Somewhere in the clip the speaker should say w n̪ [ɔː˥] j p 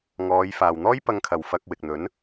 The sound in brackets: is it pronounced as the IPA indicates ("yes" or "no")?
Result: yes